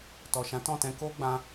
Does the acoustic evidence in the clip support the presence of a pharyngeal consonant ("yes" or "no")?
no